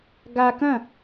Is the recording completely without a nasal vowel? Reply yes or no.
no